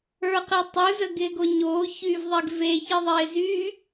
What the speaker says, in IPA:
ə˞ q i tˤ ə˞ z ə ɡ ɪː ɡ o ɲ oː ç yː v ðˤ e ɡ v eː ç i ðˤ ɪː z yː

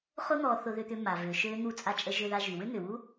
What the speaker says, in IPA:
χ ʊ˥ n̪ ɔ˧ θ ʊ˧ ð ʏ˧ t̪ ʏ˧ m a˩ v ʏː˩ ʃ øː˧ n̪ u˧ t͡sʼ a˧ t͡ʃʼ ə˧ ʒ ʏ˧ ð a˧ ʒ y˩ w ʏ˥ n̪ ʏː˩ w u˥

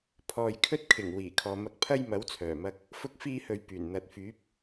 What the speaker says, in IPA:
pʰ ɔː˨ j kʰ ɵ˥ t̚ kʰ ɪ˨˩ ŋ w iː˨˩ kʰ ɔː˨ m ɐ˧ k̚ pʰ ɐ˥ j m ɐ˨˥ w t͡sʰ œː˨˩ m ɐ˧ k̚ | f ʊ˥ k̚ f iː˥ h ɵ˧ ɥ p yː˨˩ n n̪ ɐ˨ t̚ f yː˨˥ p̚

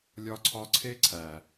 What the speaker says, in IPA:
lʲ ɒ˦ ǀʰ ɒ˦ ǀʰ e˦ ǀʰ æ˨

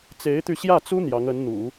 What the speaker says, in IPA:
t͡s e˧˥ ɪ̯ t̪ y˧ ɕ j ä˥˩ t͡s u˥ n̪ j ɑ˧˥ ŋ ə˧˥ n n̪ ṵ˨˩˦

